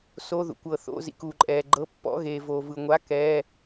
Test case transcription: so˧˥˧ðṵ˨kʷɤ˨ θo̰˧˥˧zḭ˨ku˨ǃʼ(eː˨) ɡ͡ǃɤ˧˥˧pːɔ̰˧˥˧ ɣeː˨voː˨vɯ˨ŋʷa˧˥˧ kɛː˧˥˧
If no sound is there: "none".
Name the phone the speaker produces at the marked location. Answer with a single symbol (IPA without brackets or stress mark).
ɛː˨